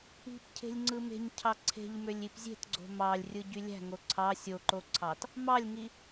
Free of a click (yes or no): no